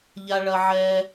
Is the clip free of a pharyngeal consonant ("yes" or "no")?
no